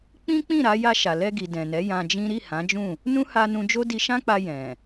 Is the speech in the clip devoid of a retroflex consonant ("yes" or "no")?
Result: yes